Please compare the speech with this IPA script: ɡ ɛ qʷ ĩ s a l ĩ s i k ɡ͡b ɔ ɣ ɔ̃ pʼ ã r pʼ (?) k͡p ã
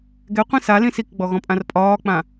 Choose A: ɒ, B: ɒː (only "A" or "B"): B